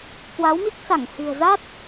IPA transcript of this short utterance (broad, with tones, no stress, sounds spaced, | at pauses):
k w a˨˦ w m i˦˥ k̚ s a˧˩ ŋ h ɨ̤˨˩ ə̯ z a˦˥ t̚